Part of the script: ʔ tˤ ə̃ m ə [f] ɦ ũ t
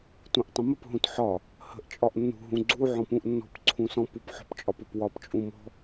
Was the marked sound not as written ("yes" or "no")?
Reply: yes